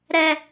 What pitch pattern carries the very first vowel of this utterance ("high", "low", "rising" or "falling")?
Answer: low